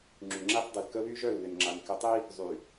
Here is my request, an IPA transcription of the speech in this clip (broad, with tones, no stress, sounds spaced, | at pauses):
ŋ͡ǁ y˨ ŋ͡ǁ a˦ θ dˤ e˨ l k ə˦ β y˦ ʒ œ˦˨ l β ɪ˨ n ŋ͡ǁ a˨ n k ɪ˨ tˤ i˦ | zˤ y˨